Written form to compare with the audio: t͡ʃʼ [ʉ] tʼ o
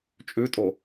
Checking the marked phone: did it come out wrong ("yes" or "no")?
no